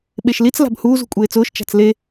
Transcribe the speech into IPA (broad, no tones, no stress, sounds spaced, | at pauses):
ɓ e ʃ l i t͡s l a̤ b h uː z ṳ kʷʼ eː t͡s ʊː ʃ t͡ʃ a̤ t͡s l e